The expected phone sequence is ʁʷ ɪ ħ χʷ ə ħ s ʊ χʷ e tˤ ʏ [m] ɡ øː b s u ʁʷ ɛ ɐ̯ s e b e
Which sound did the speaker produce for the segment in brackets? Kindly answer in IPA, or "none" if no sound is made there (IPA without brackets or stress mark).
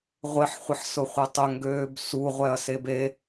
ŋ